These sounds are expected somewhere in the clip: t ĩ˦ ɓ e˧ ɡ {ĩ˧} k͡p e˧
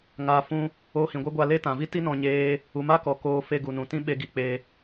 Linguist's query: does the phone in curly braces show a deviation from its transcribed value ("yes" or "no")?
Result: yes